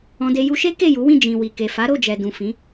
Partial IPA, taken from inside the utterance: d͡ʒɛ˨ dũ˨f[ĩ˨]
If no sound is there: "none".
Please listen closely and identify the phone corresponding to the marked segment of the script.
ĩ˨˦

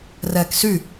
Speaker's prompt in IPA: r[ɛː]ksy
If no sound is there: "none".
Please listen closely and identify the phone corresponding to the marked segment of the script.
ɛː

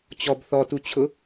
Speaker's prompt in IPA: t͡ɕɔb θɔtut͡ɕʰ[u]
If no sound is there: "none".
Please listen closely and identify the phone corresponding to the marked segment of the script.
ʊ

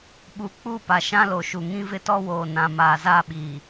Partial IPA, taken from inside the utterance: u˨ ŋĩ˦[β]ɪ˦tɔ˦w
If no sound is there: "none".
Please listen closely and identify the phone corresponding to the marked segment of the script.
v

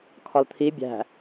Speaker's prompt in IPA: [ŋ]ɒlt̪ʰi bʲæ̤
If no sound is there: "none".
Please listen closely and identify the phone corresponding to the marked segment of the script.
kʰ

